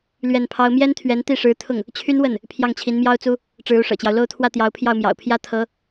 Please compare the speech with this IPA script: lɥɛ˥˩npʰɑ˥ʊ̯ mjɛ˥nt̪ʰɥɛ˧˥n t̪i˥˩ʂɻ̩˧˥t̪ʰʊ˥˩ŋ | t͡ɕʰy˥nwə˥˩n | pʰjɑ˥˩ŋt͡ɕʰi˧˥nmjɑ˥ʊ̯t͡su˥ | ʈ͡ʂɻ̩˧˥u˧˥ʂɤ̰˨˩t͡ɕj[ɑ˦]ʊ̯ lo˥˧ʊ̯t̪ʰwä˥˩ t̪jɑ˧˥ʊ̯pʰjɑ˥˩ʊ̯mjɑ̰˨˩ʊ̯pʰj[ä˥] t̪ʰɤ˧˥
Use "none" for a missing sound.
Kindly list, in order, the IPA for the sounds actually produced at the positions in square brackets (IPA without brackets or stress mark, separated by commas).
ɑ˦, ä˥